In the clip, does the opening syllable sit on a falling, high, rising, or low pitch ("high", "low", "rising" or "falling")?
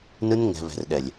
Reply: high